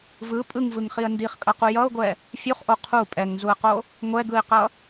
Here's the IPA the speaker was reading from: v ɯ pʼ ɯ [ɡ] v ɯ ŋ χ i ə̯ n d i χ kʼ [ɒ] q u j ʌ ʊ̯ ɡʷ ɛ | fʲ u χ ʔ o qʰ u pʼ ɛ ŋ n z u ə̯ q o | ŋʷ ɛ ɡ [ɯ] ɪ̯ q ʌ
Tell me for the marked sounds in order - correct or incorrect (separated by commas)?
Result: incorrect, incorrect, correct